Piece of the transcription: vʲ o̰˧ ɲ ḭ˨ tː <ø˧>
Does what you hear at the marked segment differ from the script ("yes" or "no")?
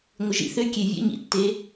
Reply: yes